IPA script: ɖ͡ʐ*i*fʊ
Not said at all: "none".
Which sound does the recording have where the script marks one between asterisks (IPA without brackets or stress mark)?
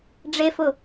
e